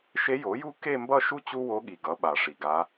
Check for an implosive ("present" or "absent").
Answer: present